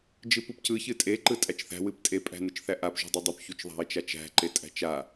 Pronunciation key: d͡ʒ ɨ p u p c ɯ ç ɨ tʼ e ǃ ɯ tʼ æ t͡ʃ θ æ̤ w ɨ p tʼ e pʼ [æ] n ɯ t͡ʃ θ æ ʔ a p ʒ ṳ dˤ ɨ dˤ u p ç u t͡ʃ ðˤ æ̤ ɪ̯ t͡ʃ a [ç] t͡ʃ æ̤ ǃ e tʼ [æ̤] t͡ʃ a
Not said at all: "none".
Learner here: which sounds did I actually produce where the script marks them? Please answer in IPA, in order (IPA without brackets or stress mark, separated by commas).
æ̤, none, æ̤